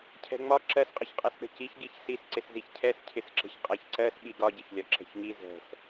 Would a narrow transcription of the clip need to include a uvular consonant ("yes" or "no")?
yes